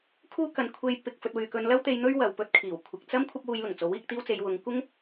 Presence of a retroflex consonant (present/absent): absent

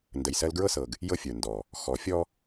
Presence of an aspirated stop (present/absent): absent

